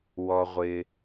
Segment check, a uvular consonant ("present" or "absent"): present